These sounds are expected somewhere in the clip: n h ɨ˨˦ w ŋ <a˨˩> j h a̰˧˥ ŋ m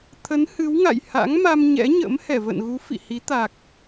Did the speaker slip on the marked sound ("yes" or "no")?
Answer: yes